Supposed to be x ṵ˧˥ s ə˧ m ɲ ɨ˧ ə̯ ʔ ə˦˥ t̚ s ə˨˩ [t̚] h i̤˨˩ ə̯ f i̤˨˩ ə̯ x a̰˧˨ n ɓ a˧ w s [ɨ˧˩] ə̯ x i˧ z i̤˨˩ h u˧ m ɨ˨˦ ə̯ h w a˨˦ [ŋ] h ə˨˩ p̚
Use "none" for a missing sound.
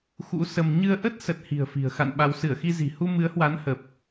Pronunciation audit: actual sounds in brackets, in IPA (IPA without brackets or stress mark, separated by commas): t̚, ɨ˧˩, n